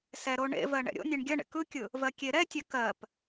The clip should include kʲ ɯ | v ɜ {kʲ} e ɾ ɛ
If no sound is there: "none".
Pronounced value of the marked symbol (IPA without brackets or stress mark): kʲ